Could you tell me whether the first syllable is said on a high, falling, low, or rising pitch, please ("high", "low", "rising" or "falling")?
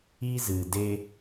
high